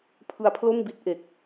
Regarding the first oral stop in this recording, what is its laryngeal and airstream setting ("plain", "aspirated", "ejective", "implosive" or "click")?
aspirated